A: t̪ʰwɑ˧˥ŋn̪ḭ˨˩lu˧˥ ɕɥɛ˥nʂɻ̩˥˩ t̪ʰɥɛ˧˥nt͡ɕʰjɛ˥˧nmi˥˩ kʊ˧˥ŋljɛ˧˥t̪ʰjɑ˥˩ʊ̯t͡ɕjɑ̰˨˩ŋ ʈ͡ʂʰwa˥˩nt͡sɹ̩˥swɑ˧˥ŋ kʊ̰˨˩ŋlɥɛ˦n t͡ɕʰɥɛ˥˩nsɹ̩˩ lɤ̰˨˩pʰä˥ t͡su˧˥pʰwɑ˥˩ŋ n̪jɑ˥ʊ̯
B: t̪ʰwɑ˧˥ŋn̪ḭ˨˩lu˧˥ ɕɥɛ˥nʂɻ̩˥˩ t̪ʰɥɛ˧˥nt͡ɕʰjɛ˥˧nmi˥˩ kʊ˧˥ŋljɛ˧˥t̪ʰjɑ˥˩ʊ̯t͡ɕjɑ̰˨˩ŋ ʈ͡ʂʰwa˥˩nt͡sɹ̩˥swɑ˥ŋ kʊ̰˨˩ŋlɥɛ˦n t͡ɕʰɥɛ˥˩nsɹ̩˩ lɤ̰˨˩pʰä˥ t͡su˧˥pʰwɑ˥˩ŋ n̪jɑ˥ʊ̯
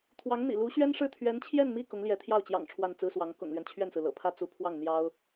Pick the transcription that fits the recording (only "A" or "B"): A